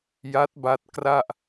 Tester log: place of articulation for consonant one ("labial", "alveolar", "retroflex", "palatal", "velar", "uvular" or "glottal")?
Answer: palatal